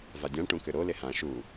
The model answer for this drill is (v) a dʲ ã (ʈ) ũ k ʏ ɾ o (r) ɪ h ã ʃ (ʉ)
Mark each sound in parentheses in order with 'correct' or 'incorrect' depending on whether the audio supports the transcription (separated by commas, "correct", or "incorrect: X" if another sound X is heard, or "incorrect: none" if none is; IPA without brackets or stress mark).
correct, correct, incorrect: l, incorrect: u